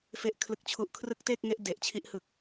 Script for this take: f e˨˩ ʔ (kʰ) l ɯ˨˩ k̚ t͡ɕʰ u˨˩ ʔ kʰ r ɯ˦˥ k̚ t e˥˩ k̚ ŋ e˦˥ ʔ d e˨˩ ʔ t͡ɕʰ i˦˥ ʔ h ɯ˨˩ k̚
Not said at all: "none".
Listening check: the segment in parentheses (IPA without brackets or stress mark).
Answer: kʰ